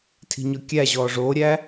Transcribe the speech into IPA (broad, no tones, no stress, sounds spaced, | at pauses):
tʰ i̤ ɲ ɔ kʲ æ ʑ ɔː ʐ oː ɾʲ æ